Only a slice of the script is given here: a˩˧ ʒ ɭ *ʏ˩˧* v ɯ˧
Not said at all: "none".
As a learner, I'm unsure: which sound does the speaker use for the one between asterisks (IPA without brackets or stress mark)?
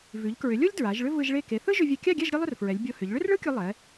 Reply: ʏ˥